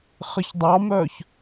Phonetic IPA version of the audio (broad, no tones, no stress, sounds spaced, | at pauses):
χ ɘ ç dˤ ɑ m œ ç